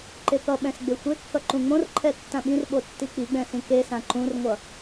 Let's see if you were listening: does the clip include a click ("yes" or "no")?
yes